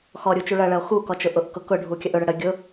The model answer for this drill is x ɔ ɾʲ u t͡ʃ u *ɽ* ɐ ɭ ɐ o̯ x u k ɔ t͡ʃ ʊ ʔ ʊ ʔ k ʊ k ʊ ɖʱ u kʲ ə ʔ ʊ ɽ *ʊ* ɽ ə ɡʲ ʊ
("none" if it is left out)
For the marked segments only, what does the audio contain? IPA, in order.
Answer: ɭ, ə

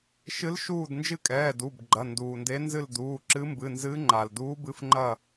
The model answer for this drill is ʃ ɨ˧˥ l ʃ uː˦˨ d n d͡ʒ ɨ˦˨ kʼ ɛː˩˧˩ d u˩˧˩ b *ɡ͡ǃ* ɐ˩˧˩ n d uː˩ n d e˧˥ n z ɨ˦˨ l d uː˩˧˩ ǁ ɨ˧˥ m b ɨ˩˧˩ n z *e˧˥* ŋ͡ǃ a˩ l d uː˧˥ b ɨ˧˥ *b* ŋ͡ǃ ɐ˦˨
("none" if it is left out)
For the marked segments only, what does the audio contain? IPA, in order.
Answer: ɡ͡ǃ, ɨ˧˥, f

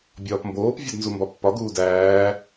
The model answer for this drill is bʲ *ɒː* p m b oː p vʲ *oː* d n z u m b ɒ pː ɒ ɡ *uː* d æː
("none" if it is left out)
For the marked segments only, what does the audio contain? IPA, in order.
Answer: ɒː, o, uː

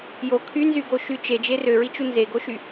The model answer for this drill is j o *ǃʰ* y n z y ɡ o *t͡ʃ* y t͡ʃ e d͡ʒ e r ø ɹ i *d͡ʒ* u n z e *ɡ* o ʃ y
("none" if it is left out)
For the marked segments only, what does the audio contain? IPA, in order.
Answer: kʰ, ʃ, t͡ʃ, ɡ

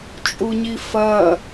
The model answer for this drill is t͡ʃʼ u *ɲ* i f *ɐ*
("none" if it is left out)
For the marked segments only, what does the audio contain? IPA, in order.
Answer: ɲ, ɐ

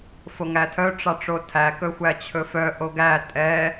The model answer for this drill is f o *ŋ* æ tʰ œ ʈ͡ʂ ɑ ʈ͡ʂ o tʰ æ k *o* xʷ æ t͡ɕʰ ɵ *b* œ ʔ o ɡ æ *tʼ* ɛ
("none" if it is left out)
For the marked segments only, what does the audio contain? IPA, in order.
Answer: ŋ, ɵ, f, tʼ

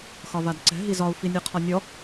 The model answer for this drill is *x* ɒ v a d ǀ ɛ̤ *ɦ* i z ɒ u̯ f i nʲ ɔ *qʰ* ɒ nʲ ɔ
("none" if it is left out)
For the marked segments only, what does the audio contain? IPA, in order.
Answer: x, ɦ, qʰ

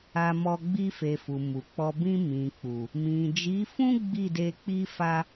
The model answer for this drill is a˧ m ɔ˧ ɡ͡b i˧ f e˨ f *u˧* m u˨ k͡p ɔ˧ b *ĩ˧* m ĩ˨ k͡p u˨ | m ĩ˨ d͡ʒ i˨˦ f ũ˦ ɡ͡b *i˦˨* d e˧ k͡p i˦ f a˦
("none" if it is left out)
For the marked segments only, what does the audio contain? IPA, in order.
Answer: u˨, ĩ˧, i˦˨

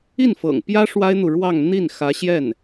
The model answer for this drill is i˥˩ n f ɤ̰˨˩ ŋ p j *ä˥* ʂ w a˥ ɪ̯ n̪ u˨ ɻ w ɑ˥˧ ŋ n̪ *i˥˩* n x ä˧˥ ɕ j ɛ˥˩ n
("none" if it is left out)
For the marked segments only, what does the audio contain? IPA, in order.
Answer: ä˥, i˥˩

